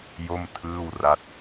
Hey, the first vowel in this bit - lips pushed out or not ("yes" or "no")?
yes